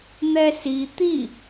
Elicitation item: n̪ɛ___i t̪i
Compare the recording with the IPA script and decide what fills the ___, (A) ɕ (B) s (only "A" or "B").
B